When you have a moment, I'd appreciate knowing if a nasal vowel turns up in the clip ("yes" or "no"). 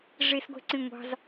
yes